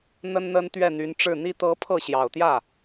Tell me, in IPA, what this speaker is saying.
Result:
n̪ ə˥ n n̪ ə˥ n t̪ ɥ ɛ˥˩ n̪ y˧˥ n ʈ͡ʂ ɻ̩˥˩ n̪ i˥ t̪ ɤ˧˥ pʰ ɤ˥˩ ɕ j ɑ˨˩ ʊ̯ t̪ j ä˥˩

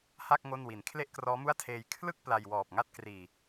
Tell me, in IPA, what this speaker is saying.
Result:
h a˥˩ k̚ ŋ o˥˩ n w i˨˩ n kʰ l e˥˩ ʔ k r ɔː˦˥ m u˥˩ a̯ tʰ eː˧ j kʰ l ɯ˥˩ k̚ p l a˧ j w ɔː˨˩ p̚ ŋ a˥˩ t̚ k r iː˨˩

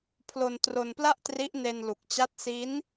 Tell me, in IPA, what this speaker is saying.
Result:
pʰ l o˧ n t r o˧ n p l a˥˩ ʔ t r i˦˥ ʔ n e˧ n l u˨˩ k̚ t͡ɕ a˦˥ t̚ s i˦˥ n

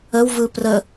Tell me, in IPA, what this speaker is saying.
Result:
ə w v ɯ p r ə

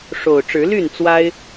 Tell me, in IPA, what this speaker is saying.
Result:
ʂ o˨˩ ʊ̯ ʈ͡ʂ ɻ̩˨˦ l y˥˨ n t͡s w a˦ ɪ̯

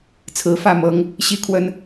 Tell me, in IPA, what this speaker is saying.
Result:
t͡sʰ ɹ̩˨˦ f ä˥˨ m ɤ˨˦ ŋ | ɕ i˦ kʰ w ə˦ n

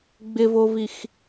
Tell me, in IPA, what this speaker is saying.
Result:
ɡ͡b ɪ v o v i x

